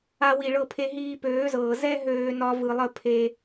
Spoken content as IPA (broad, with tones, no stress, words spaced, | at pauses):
a˧wi˨ɭɤ˧ pʰe˧ɦiː˧pøː˨˦zɤː˨ zɛ˦ ɦøː˦ nɒ˧ vɯ˨lˠə˧ pʰe˦